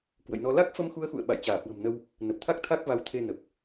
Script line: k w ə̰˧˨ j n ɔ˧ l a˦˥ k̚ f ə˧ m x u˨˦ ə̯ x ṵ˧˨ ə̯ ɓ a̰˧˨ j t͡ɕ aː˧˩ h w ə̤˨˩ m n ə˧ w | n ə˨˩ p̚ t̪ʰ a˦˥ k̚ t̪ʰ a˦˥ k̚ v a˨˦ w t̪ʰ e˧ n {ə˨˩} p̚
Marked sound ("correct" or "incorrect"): correct